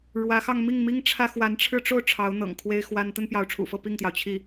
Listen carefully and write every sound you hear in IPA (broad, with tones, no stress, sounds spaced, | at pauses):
ɻ w ä˧˥ x ɑ˥˧ ŋ m i˥˩ ŋ m i˥ ŋ ʈ͡ʂʰ ä˥ x w a˧˥ n ʈ͡ʂʰ ɻ̩˥ ʈ͡ʂ o˥ ʊ̯ ʈ͡ʂʰ ɑ˧˥ ʊ̯ n̪ ɤ̰˨˩ ŋ kʰ w e˥ ɪ̯ x w a˥ n t̪ ə˥ n p j ɑ˧˥ ʊ̯ ʈ͡ʂʰ ṵ˨˩ f ɤ˥˧ p i˥˩ ŋ t̪ j ɑ˩ ʊ̯ t͡ɕʰ i˥˩